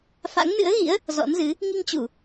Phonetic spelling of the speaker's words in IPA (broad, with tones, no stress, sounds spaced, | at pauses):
f a̰˧˥ ŋ n ɨ̰˧˥ ə̯ ɣ ḭ˧˥ ə̯ | z ɔ̰˧˥ n z ɨ˨˦ | ŋ i˧ ŋ t͡ɕ u˧˩˨